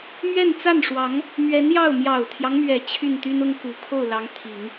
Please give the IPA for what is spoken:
mɥɛ˥˧nt͡sa˥˩nʂwɑ˧˥ŋ | mɥɛ˧˥njɑ˥˩ʊ̯ mjɑ˨˩ʊ̯t̪ʰjɑ˦ŋmɥɛ˨˩ t͡ɕʰy˥˩nt̪y˥nʊ˥ŋku˨˩ kʰo˥˩ʊ̯lɑ˧˥ŋt̪ʰi˨˩˦ŋ

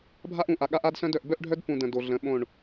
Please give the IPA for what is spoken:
bʱa˦ʔ ũ˨ʔa˨ ɠa˦ʔa˦dsœ̃˦d œ˨ʔbœ˦ʔɖʱœ˦dpũ˨ də̃˨ do˨ɮə̃˨˦ ɓõ˦˨ɳ

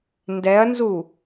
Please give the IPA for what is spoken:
ndɛɐ̯nzu

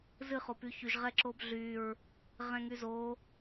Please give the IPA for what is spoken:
zɨ χopyçyʒ ʁɛǁobɮyɹ | ʁɛ̃ŋyzo

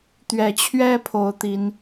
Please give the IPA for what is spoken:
t̪ɥɛ˨˩t͡ɕʰɥɛ˦ pʰo˨˦ʊ̯t̪i˨˦n

